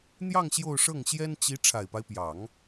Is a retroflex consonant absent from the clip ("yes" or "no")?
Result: no